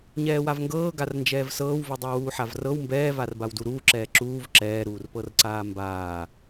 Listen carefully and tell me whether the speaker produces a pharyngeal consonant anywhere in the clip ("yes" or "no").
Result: yes